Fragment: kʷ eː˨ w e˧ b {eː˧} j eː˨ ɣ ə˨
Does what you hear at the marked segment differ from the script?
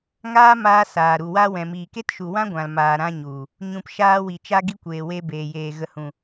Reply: yes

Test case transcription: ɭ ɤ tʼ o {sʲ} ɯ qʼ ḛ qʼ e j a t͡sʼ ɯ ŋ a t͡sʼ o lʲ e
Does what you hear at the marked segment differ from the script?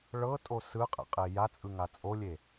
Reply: yes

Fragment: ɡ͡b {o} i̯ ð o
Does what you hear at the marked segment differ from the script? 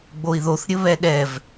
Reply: no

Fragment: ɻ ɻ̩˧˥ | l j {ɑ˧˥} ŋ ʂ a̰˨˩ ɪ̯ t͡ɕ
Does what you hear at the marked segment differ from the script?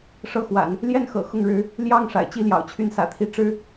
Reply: yes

